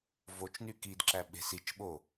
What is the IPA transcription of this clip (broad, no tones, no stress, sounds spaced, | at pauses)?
v o t͡ʃ n y k i d ǁ æ ɓ e̤ s i t͡ʃ ɓ o